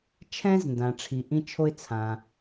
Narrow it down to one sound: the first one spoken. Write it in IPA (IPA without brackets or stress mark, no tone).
t͡ʃʰ